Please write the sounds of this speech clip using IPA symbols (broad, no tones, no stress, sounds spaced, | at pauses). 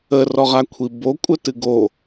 ə r ɔ ʁ a kʷʰ i b o kʷʼ ə t ɨ ɡ o